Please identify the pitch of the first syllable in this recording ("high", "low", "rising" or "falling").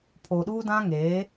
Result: low